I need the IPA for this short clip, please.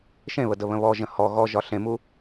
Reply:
ʃ ẽ β ə d ə β ə̃ β ɔ ʒ ə̃ h ɔ ɣ ɔ ʒ ɒ ɬ ẽ m u

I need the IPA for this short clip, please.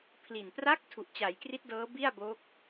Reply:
pʰ l i˨˩ n p r a˦˥ k̚ tʰ u˨˩ ʔ t͡ɕ a˩˦ j k r i˦˥ t̚ d ɤː˦˥ b i˥˩ a̯ b oː˦˥ k̚

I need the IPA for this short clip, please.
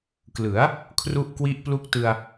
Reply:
k l ɯ˩˦ a̯ | kʰ r u˥˩ ʔ k w i˥˩ ʔ p l u˥˩ k̚ t ɯ˧ a̯

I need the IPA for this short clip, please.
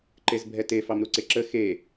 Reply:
ǃ e z bʱ ɛ t e f ɑ m ɾ u ǀ e ǁ ə x e

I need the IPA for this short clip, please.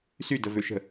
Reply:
s y d ə v ø ʃ ə̤

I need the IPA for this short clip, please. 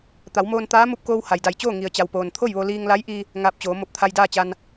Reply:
t̪ a˩˧ w m oː˧ n t̪ aː˧˥ m u˧ p̚ k oː˧ w h a˩ j d a˧˩ j t͡ɕ oː˥˨ ŋ i˩ ə̯ t͡ɕ a˩ w p oː˩ n t̪ʰ o˥˨ j ʋ o˧ l iː˧ ŋ l a˧˥ j ʔ i˧ | ŋ aː˧ p̚ t͡ɕ oː˩˧ m o˧˩ p̚ t̪ʰ a˧ j d aː˥˨ t͡ɕ a˧ n

